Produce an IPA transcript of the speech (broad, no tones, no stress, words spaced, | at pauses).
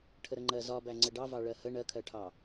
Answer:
ʈʰəɾəŋ͡ǃɜ zɒbæ ŋ͡ǀəɖɑvɑ ɭɜhə ɳɜkʰɜʈʰɑ